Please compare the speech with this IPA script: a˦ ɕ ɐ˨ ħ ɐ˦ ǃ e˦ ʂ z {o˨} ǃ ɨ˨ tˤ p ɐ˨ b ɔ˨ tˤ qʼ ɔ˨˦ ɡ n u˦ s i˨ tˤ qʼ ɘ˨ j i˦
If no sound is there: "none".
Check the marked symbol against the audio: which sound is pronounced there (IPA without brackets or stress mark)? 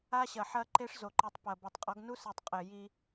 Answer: o˨